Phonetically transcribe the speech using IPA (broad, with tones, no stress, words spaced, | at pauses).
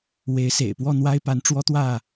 we˨˦ɪ̯sḛ˨˩ɪ̯ pwɔ˥˨n̪wa˦ɪ̯pa˨˦n ʈ͡ʂwɔ˦t̪wä˥˨